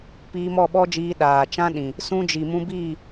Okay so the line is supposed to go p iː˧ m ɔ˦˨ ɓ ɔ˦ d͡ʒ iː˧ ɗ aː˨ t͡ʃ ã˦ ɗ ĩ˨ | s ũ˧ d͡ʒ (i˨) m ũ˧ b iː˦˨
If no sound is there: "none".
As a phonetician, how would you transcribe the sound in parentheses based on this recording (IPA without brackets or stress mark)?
i˨